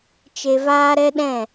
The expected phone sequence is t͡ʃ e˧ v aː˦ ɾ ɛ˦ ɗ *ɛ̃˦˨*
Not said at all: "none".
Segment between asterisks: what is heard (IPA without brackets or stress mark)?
ɛ̃˦˨